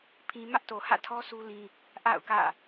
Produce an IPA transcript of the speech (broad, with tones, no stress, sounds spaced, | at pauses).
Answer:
pʰ ĩ˦ m ä˦ ʔ t o˨ h ä̰˦˨ tʰ ɔ˦ sʰ u˦ l ĩ˦ | ʔ a̰˦˨ ʊ̯ k ä̰˦˨